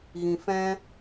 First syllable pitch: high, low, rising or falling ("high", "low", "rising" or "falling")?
low